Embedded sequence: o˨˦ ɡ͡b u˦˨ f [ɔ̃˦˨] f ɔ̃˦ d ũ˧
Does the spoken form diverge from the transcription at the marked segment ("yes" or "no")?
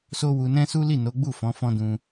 yes